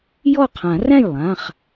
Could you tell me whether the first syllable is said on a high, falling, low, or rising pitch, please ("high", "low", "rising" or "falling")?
falling